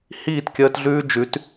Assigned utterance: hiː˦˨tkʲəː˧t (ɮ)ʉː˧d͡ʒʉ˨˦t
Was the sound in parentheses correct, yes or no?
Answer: yes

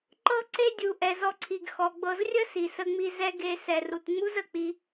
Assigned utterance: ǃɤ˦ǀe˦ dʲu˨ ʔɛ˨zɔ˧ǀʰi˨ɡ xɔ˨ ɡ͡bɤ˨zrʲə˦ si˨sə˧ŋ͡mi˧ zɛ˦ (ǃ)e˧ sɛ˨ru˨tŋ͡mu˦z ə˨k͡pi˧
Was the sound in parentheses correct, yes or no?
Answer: no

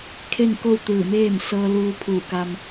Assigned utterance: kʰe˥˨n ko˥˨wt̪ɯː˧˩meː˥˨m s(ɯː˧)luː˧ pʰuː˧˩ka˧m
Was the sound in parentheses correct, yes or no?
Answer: no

